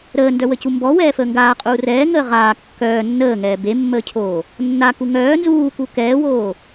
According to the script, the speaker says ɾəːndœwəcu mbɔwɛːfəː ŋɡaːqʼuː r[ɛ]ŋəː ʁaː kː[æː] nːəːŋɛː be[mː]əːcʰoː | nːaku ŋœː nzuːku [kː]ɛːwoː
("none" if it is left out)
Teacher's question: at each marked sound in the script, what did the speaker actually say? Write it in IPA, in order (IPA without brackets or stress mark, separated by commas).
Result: ɛː, œː, mː, k